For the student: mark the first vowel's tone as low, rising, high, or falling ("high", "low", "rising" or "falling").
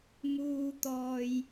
low